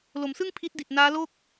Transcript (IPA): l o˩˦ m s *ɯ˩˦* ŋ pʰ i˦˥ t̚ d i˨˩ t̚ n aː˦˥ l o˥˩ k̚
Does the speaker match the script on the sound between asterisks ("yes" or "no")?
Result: no